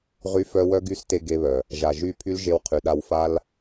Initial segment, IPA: ʁ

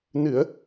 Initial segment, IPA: n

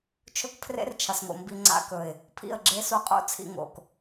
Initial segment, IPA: t͡ʃʰ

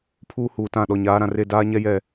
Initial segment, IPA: pʰ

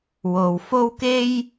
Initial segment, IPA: w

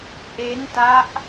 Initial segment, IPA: ʔ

